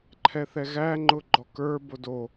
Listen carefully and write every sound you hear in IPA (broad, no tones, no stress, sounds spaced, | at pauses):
ǃʰ ɛ θ ɛ ɣ æ ŋ͡ǃ ʊ ɡ͡ǃ ɔ k ə˞ b o d o